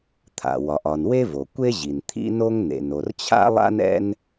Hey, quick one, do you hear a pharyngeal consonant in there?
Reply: no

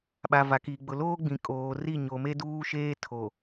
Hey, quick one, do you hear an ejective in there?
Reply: yes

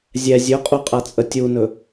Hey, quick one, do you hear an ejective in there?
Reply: yes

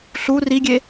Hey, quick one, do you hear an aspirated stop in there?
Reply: no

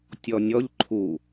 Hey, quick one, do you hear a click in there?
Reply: yes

